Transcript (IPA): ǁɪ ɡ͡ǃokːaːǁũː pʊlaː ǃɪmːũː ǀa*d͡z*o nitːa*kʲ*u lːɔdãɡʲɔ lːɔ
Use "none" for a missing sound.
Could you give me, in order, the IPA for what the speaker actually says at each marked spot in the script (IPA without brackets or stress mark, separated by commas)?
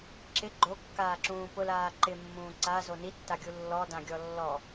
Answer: z, ɡʲ